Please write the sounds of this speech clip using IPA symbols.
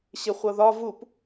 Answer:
ɕɪχʷʌðɒ vup

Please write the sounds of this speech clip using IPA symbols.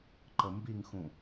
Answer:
ǃəmbiŋxũ

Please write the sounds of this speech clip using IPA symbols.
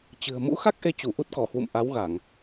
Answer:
t͡ɕɨ̤˨˩ə̯ mṵ˧˥xa˦˥k̚ʔe˨˦ t͡ɕu˧˩ʔu˦˥t̚kɔ˧˩hwṵ˧˨m ʔa˨˦wɣa˧˩˨ŋ

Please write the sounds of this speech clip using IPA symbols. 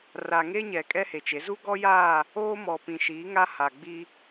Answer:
ra˨ŋe˦ ɲɛ˨ kʼɛ˦he˨t͡ʃe˨˦ zu˦ɡɔ˦jaː˦˨ | oː˦mɔ˨ pĩ˨ʃiː˨˦ŋa˦ ha˨ɡ͡bi˦

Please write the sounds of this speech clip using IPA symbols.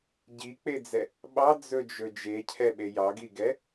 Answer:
ɟik͡ped͡zɛ | ɓɑd͡zɵd͡ʒɵ d͡ʒecʰɛɓe jɑɡiɡɛ

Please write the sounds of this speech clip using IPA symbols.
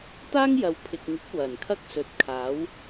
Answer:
t̪aː˥ŋjɐ˨w pʰɪ˨k̚ŋɪ˨˥k̚ wɐ˨˩nkʰɐ˥k̚sɵ˨˥t̚kʰaː˨˥w

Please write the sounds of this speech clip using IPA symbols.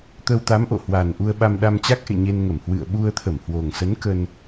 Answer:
t̪ə˧wt̪a˨˦mʔo̰˧˨ hwa˨˩n ʔu˧ə̯ɓa˧mɗa˧mt͡ɕa˦˥k̚ ʔḛ˧˨ɲe˧nŋə˧˩m hwɨ̰˧˨ə̯ ɓu˧ə̯t̪ʰə˧˩mhwo˨˩ŋsə˨˦n kə˧n

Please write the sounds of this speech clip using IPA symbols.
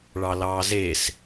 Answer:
ɭɑlɑːzes

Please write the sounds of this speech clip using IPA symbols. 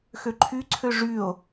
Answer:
xøǃʰyǀʰø ʐyo̯

